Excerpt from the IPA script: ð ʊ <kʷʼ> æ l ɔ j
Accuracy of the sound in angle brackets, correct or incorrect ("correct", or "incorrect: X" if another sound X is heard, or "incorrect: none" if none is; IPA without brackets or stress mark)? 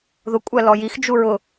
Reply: correct